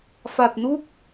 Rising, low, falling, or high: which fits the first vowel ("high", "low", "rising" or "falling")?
low